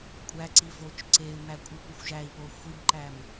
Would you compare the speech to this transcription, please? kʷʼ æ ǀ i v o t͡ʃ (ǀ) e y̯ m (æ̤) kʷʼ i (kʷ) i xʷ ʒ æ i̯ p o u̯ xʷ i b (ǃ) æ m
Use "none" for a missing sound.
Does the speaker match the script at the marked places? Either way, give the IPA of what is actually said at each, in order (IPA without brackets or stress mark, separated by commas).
ǀ, æ, kʷ, ǃ